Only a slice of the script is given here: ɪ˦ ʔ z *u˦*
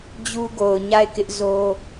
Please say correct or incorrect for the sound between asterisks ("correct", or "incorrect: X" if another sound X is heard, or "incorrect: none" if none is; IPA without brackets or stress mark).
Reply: incorrect: o˦